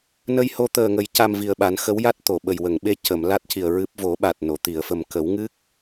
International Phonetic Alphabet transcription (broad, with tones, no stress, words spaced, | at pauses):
nə˧jho˧ t̪əː˨˩ŋə˨˩˦j ca˧mvi˨˩ə̯ɓa˨˩˦n xə˧˥wja˦˥t̚ t̪o˨˩˨ɓə˨˩j wə˨˩˨ŋɓe˧ cə˨˩˨mla˦˥t̚ci˨˩ə̯ ɹɨ˦˥p̚ vo˨˩˦ɓa˨˩t̚ no˨˩˨ t̪i˨˩˨ə̯fə˨˩m kə˨˩˦wŋɨ˦˥k̚